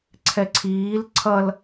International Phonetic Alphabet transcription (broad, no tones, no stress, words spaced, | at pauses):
ǀʰɛǀʰiːl ǀʰʌl